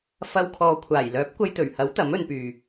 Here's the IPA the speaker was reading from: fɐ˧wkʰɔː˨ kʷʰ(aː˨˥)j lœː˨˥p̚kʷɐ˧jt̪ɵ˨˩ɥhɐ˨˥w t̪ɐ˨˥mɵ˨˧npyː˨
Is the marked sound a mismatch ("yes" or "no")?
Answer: yes